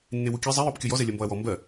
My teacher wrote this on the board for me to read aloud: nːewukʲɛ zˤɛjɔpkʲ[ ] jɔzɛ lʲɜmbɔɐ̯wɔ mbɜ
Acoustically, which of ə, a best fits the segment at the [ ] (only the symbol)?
ə